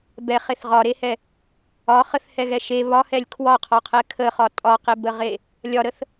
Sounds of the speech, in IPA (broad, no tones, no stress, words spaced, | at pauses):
bɛχeθ ʁɒɾehɛ | ɒ χəθhɛɣɛ ʃe βɒhɛlʲ kʰwɒqʰɒqʰɛ kʰəχɒ tʼɒqebəʁe | lʲɒɾəθ